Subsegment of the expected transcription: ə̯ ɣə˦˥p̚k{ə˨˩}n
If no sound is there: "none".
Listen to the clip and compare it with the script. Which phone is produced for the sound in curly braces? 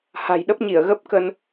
ə˧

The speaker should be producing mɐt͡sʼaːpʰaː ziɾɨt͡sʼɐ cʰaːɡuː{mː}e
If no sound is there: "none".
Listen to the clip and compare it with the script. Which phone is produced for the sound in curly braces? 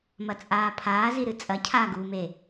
m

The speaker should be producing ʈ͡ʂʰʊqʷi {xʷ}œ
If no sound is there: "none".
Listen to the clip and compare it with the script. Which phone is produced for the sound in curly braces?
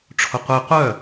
qʷ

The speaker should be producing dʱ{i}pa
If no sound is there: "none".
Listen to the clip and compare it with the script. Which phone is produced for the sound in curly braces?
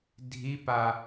i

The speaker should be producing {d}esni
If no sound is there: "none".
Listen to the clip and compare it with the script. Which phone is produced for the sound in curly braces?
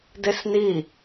d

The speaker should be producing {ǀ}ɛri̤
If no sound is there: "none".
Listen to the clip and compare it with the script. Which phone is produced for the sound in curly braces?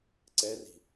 ǀ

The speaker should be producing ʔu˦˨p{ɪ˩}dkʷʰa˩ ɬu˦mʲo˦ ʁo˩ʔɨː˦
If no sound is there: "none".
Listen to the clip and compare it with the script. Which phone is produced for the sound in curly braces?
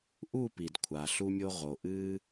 i˩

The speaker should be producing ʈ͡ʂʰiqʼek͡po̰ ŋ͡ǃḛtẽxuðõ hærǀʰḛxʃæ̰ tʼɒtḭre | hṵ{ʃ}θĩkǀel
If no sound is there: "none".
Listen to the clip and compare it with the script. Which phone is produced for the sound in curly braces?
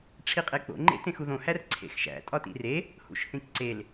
ʃ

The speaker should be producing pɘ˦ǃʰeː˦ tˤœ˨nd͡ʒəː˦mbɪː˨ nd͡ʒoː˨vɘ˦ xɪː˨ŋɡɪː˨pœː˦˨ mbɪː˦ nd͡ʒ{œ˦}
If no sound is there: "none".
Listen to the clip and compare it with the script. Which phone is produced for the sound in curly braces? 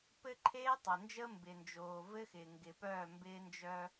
œ˦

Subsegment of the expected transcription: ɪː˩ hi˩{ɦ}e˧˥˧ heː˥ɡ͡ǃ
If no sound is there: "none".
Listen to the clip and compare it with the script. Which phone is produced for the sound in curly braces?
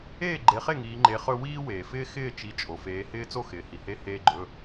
h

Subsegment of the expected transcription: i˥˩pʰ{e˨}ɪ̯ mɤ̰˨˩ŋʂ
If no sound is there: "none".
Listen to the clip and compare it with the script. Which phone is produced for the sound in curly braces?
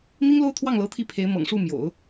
e˧˥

